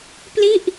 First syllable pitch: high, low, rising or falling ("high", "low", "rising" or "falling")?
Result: falling